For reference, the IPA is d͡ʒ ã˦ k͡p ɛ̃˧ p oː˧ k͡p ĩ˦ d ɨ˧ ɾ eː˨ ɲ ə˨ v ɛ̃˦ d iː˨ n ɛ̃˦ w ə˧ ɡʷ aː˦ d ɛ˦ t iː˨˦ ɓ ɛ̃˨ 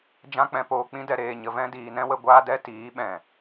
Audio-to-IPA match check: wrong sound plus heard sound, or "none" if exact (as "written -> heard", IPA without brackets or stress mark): ɨ˧ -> ɛ˧